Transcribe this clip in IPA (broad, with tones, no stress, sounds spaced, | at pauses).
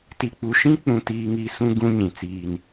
t i˨ k͡p u˨ ʃ ĩ˦ k͡p ũ˨ t iː˨ ŋ i˨ s ũ˦ ɡ ũ˦ ɲ ĩ˨ t͡s iː˨ n